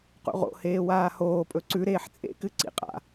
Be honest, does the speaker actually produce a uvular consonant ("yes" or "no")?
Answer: yes